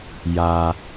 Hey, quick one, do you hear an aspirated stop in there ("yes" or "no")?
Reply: no